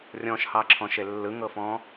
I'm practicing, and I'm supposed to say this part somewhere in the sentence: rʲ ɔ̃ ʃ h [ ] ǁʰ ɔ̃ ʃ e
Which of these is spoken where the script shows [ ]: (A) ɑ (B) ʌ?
A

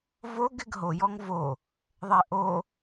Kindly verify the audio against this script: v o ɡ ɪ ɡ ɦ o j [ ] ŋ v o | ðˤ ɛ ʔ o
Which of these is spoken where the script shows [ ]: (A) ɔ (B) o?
A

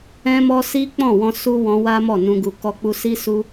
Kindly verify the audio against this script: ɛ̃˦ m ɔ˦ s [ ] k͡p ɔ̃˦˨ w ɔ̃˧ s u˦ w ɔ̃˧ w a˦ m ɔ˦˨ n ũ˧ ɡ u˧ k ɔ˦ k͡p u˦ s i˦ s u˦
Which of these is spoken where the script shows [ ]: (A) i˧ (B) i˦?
B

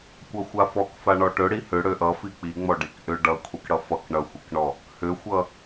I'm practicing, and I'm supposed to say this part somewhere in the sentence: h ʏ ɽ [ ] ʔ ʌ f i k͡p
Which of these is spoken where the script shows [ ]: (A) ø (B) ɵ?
A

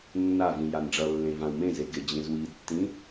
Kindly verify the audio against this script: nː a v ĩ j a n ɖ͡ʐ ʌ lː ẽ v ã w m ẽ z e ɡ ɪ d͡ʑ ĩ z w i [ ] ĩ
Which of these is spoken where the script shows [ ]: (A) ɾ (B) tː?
B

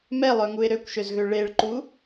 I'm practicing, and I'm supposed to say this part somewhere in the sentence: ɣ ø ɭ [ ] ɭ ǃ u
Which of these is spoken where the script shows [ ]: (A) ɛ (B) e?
B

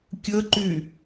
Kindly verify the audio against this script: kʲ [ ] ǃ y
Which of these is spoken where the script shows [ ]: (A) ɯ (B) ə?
B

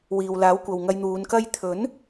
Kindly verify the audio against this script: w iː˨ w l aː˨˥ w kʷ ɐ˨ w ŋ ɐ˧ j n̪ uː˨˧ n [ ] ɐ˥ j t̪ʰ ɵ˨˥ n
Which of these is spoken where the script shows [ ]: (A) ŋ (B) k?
B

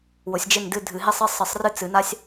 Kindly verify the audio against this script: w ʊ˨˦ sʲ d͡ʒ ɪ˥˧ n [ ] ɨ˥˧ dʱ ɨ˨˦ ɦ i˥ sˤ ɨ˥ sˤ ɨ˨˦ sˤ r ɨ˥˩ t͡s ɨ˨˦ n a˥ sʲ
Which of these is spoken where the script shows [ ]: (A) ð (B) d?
B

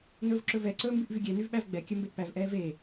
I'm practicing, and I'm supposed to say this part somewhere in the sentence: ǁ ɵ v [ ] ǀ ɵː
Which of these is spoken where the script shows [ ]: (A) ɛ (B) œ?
A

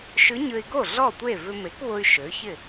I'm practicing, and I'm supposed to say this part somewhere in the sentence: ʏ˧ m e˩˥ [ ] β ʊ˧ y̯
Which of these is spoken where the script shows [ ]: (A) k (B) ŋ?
A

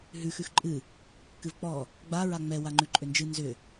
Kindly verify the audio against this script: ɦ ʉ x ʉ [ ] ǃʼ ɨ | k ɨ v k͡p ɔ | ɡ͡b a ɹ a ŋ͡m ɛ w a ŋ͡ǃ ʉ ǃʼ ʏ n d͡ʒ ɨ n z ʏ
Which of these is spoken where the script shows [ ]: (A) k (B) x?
B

